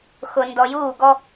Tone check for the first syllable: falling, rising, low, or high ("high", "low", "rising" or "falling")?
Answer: low